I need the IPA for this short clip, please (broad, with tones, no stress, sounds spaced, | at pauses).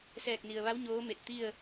s ɛː˧˩ k̚ n i˩ ə̯ ʋ a˧˥ w ɲ oː˧˥ m e˧˩ t̚ t̪ i˥˨ ə̯